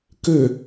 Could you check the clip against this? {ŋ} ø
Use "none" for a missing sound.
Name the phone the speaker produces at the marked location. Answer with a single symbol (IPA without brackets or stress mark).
k